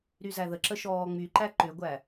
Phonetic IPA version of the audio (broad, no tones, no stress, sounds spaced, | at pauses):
ɾ y z æ ð ə ǁ ə ʃ ɔː ŋ͡m y ǃ æ ǃ ʏ ɡʷ æ